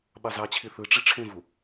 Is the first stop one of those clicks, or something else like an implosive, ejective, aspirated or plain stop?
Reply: implosive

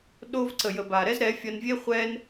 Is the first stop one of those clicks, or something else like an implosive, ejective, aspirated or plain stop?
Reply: implosive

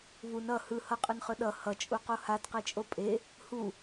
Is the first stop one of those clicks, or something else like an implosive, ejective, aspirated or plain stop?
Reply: ejective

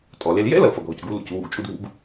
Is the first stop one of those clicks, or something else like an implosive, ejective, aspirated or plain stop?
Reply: ejective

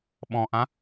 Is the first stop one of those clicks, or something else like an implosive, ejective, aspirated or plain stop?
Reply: implosive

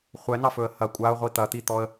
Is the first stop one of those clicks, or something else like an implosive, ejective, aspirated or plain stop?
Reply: ejective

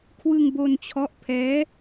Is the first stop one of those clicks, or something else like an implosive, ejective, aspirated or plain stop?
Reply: aspirated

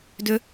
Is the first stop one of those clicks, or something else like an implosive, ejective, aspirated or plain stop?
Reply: plain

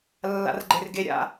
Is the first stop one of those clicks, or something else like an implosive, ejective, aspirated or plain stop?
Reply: click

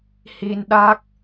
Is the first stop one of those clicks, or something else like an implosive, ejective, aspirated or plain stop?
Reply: implosive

